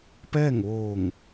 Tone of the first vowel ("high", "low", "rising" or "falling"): falling